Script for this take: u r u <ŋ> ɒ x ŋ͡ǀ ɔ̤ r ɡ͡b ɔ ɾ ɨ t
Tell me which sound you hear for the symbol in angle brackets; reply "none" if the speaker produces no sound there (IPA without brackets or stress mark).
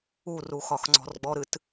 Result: x